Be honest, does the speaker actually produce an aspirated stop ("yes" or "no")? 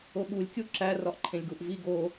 yes